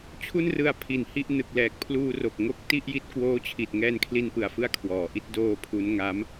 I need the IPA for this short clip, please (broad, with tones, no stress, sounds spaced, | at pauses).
t͡ɕʰ u˥˩ n r ɯ˧ a̯ pʰ i˨˩ n h i˥˩ ʔ n ɯ˨˩ k̚ l ɛː˨˩ k̚ pʰ l uː˧ r o˨˩ k̚ ŋ o˦˥ k̚ t i˥˩ ʔ j i˦˥ t̚ k w oː˦˥ t͡ɕʰ i˨˩ t̚ ŋ ɛː˧ n kʰ l i˧ n p ɯ˨˩ a̯ f ɯ˧ a̯ kʰ w ɔː˩˦ ʔ i˥˩ t̚ d oː˧ pʰ u˦˥ n ŋ a˦˥ m